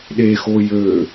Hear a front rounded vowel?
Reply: yes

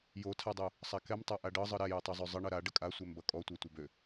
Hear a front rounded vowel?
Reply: yes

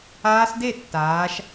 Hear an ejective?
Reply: no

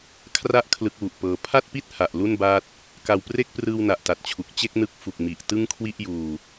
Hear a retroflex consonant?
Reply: no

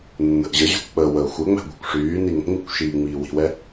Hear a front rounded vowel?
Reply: yes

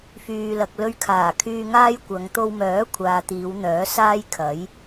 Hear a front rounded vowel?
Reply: yes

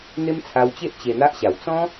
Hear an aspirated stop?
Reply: yes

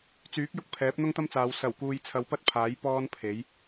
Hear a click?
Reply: no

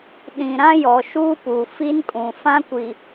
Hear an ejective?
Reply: yes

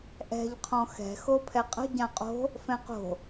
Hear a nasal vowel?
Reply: yes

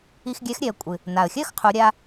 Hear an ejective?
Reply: yes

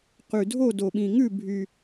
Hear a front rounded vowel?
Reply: yes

